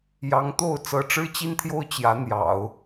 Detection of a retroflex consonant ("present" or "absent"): present